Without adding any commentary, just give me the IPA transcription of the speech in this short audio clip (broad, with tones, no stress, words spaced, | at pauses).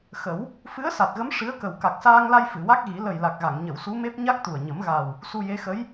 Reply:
xə˨˩˦w | fɨ˧˥ə̯sa˨˩t̚ɣə˧˥m ʂɨ˧˥ə̯kə˨˩w ka˨˩k̚saː˧ŋla˧j fɨ˨˩˨wa˦˥k̚ɣi˨˩˦ lə˨˩jla˨˩k̚ɣa˨˩˨ŋɲə˨˩˨w su˧˥me˦˥p̚ ɲa˦˥k̚t̪u˨˩ə̯ ɲə˨˩˦mɣa˨˩w | su˧je˧˥xə˧˥j